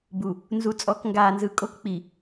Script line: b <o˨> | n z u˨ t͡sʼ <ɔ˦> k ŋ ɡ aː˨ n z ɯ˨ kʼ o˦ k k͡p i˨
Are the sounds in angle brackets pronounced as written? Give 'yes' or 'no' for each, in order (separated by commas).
no, no